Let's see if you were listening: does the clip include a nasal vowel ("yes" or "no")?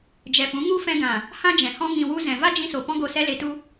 yes